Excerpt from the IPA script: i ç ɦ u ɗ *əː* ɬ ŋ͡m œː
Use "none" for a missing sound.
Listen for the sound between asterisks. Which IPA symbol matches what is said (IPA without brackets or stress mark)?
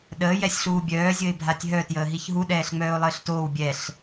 ɛː